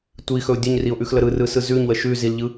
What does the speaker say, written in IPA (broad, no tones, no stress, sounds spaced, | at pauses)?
tʷ i x ɵ ʊ̯ dʲ ɵ ɲ r i ʊ̯ ʔ ʉ x l ə ɾ ɯ r ɯ s ɯ z ʉ ɲ w ə ʃ ʉ z i l ʎ ɯ